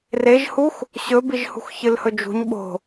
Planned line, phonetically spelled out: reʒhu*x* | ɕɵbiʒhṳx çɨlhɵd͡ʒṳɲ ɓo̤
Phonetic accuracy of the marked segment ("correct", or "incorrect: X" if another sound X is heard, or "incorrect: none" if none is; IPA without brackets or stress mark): correct